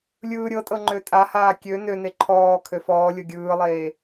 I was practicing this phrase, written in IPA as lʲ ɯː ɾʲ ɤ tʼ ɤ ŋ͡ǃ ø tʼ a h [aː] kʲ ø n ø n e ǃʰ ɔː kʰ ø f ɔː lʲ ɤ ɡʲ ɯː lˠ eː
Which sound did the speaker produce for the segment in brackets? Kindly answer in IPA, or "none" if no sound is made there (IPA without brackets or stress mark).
aː